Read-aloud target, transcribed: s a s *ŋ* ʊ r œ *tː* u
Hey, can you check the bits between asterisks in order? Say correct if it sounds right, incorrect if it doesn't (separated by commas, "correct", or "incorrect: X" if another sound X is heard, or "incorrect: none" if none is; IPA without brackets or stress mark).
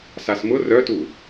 incorrect: m, incorrect: t